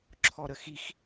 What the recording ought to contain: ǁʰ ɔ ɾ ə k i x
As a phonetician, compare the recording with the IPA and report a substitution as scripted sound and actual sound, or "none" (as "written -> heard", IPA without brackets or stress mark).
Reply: k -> x